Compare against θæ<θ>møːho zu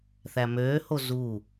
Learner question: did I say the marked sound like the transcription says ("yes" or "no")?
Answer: no